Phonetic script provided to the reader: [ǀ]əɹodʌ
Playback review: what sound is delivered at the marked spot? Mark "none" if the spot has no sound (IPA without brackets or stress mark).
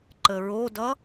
ǃ